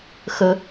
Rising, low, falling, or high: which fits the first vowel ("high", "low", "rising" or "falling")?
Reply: low